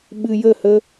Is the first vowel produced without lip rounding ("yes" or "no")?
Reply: yes